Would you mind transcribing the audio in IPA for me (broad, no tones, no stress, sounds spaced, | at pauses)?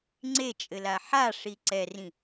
ŋ͡ǀ e t͡ʃʼ ɘ l a ħ a ʂ i ǀ ɛ r ĩ